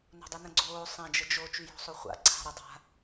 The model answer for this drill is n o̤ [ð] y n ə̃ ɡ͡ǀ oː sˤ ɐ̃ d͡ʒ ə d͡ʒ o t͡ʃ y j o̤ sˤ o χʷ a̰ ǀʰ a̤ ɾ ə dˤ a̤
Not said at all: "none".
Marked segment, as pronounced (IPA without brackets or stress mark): dˤ